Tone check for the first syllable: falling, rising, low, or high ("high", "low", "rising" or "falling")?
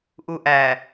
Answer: low